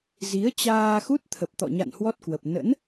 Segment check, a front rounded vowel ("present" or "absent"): absent